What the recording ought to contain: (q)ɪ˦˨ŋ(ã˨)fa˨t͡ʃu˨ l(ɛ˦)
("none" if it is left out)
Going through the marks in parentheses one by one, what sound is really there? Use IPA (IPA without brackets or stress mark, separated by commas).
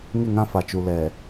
ŋ, ã˦, ɛ˨